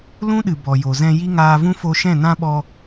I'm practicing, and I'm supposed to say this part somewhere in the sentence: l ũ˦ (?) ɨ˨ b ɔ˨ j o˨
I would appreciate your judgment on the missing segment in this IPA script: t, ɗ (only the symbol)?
ɗ